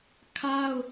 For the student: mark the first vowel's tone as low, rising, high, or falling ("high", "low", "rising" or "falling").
high